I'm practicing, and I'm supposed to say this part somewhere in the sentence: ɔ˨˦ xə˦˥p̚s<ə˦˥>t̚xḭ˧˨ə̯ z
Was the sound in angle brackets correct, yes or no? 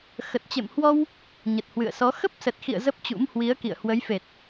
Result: no